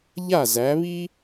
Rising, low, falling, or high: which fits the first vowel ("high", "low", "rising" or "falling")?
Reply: falling